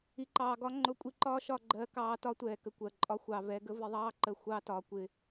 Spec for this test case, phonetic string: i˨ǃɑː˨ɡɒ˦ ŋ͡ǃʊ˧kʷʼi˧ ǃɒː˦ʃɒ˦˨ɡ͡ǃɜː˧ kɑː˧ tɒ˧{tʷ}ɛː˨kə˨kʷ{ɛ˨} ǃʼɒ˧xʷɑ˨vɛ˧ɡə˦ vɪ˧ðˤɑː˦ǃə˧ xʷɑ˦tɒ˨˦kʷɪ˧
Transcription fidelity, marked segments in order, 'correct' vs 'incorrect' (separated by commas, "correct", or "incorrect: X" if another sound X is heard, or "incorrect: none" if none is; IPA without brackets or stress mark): correct, incorrect: ɜ˨